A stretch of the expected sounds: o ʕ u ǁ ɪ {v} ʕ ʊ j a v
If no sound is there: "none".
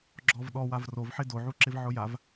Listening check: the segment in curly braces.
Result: v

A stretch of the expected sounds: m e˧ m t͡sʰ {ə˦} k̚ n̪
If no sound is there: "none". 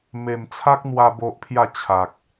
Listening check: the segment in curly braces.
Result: a˦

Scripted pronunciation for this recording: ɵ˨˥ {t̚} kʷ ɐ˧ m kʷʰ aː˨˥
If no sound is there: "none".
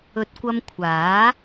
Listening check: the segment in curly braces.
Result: t̚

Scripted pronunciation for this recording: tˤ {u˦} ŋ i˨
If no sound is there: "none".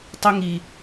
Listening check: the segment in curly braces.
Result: u˦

